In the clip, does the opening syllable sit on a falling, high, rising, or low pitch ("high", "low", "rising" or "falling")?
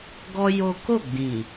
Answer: high